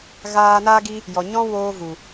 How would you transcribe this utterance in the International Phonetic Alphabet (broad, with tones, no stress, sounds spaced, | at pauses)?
ɣ aː˧ n aː˦ ɡ i˦ | j ɔ˨ ɲ ɔ̃˦ w oː˧ v u˨